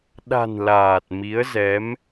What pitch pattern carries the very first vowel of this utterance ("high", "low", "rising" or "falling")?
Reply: low